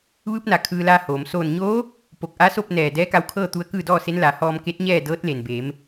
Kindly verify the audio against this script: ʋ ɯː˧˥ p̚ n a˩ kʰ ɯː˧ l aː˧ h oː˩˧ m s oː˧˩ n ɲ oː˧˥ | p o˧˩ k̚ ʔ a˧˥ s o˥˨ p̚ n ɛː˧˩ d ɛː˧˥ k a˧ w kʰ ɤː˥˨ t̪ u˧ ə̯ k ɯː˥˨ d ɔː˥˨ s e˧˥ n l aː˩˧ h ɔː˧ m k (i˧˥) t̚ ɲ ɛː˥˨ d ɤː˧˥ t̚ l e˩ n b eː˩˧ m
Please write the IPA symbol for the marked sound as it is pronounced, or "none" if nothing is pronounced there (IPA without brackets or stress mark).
e˧˥